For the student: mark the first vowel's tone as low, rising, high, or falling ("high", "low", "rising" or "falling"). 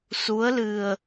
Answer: rising